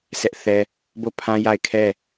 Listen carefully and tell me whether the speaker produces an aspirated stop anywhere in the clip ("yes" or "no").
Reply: yes